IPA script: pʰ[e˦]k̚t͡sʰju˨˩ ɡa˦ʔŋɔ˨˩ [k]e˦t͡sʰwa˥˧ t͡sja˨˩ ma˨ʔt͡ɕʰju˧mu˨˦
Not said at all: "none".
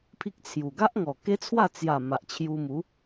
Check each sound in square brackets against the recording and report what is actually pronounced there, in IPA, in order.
i˦, k

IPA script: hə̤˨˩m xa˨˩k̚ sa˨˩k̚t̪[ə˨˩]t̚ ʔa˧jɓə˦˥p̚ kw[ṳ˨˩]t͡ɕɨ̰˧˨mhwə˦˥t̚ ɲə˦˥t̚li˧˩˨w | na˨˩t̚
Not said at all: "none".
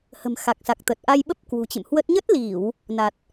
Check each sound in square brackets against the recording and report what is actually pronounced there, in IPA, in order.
ə˨˩, ṳ˨˩

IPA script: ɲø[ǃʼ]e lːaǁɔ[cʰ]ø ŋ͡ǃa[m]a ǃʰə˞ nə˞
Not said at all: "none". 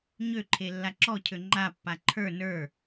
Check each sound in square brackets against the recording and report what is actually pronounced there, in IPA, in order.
ǃʰ, cʰ, pː

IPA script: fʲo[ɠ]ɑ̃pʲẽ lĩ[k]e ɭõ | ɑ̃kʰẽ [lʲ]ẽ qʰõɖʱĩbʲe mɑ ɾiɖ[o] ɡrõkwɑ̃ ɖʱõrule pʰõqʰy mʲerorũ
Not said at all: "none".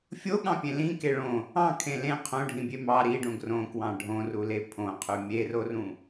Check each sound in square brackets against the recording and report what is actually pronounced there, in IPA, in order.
ɠ, k, l, õ

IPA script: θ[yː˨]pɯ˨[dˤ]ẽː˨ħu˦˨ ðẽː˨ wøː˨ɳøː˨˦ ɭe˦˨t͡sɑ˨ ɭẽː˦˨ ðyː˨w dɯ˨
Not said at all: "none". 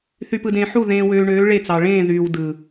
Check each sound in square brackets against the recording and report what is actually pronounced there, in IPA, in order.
y˨, d

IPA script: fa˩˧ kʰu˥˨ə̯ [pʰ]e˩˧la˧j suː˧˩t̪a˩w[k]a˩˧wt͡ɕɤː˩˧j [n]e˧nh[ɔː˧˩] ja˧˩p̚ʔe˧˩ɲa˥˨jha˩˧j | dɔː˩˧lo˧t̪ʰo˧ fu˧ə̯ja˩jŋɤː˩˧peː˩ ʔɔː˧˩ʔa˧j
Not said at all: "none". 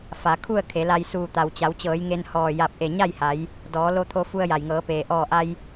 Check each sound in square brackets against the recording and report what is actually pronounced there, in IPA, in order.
kʰ, t͡ɕ, ŋ, ɔː˧˩

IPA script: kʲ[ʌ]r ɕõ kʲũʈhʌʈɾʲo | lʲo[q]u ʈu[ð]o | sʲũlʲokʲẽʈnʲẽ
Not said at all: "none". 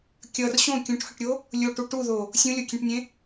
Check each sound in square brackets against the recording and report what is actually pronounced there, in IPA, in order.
ʌ, ʈ, ð

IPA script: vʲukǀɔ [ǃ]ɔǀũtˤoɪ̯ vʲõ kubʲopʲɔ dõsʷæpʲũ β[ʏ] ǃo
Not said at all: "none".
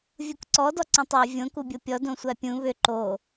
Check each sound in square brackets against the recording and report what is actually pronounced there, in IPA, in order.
d, ʏ

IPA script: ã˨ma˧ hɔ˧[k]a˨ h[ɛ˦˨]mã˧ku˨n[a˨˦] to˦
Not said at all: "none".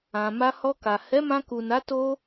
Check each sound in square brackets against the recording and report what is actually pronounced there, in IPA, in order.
k, ɛ˨˦, a˨˦

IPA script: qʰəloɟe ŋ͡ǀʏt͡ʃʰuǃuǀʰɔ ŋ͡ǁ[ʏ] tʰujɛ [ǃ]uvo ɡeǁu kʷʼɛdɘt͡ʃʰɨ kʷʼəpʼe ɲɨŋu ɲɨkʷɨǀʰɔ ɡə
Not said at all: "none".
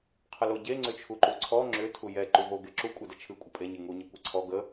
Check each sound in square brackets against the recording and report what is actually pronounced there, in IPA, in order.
ʏ, ǃ

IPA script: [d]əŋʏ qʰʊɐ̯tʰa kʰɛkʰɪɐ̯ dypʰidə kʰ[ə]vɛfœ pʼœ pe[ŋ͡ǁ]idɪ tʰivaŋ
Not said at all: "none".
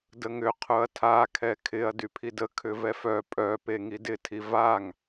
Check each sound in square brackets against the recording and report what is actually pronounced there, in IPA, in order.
d, ʏ, ŋ

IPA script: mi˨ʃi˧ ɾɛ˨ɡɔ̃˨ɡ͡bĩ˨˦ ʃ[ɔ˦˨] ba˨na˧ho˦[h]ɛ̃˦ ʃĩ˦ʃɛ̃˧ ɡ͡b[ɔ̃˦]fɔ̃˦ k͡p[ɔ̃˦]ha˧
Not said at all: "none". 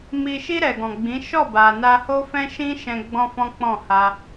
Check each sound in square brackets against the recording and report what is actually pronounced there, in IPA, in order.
ɔ˦˨, f, ɔ̃˦, ɔ̃˦˨

